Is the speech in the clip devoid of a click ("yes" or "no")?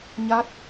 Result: yes